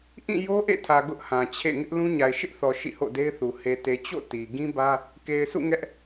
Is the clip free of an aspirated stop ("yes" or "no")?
no